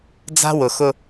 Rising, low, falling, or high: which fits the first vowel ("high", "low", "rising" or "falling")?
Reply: high